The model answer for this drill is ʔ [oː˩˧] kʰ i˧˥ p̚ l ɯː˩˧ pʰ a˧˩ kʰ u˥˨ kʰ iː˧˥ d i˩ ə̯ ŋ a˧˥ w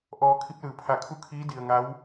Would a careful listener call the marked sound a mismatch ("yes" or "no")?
yes